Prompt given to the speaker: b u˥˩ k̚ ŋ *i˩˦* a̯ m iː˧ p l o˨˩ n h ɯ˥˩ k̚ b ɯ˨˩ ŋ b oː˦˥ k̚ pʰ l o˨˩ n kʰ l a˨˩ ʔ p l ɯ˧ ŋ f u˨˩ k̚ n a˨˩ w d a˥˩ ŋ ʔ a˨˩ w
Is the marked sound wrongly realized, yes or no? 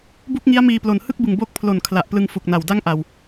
yes